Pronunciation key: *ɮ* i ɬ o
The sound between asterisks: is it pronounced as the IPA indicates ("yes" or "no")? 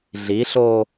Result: yes